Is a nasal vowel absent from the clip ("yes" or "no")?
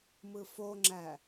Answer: yes